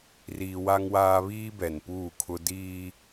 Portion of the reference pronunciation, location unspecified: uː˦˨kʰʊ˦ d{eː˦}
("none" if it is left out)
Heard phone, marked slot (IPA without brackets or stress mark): iː˦